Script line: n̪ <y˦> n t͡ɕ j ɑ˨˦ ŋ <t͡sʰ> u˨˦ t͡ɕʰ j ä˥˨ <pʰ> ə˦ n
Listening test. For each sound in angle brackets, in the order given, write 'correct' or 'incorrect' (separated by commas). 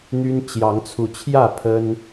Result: correct, correct, correct